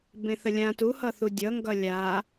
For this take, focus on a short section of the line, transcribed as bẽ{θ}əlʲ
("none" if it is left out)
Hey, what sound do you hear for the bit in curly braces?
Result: θ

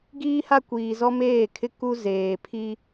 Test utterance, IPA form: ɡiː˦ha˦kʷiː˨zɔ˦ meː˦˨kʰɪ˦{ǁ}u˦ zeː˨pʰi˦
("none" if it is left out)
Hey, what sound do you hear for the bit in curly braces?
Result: k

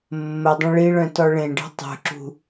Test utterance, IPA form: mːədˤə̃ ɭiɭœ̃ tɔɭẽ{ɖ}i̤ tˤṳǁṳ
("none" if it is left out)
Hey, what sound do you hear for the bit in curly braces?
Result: ɖ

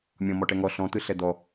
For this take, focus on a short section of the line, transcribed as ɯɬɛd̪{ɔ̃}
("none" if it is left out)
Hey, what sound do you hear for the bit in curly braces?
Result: ɔ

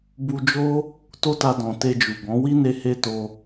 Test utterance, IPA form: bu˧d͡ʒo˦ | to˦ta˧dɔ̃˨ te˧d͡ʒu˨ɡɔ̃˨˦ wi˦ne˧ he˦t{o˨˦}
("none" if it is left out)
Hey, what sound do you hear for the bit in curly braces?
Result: o˧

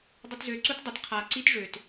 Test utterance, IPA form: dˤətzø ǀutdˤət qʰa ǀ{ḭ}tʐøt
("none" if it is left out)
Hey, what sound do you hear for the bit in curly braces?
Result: i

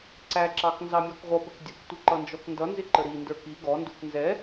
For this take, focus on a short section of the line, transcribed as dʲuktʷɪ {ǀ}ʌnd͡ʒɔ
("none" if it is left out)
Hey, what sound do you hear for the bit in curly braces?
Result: ǃ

